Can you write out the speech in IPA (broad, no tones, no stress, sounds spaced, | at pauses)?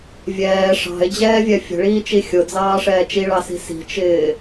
vʲ ɛː ʂ ɑ̤ ɪ̯ d͡ʑ ɛː vʲ ɛ fʲ ə̤ ɭ iː t͡ʃ i xʲ ʊ d͡z ɑː ʂ ɛː t͡ʃ i ɭ ɑ s i̤ s i̤ t͡ʃ ɪː